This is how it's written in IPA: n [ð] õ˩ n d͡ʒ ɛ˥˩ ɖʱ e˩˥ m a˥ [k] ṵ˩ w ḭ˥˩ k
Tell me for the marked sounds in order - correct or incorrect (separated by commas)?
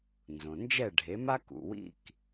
incorrect, correct